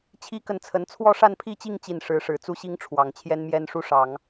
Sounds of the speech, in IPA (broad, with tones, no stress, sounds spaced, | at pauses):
t͡ɕʰ i˥ k ə˥˩ n t͡sʰ ə˧˥ n t͡sʰ w ɔ˥˧ ʂ a˥˧ n pʰ i˥˧ t͡ɕ i˥˧ ŋ t͡ɕ i˥˩ n ʂ ɻ̩˧˥ ʂ ɻ̩˨˩ t͡s u˥ ɕ i˥ ŋ ʈ͡ʂʰ w ɑ˨˩ ŋ t͡ɕʰ j ɛ˥ n m j ɛ˥ n ʂ u˥˩ ʂ ɑ˨˩˦ ŋ